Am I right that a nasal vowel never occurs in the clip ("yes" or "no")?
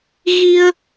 yes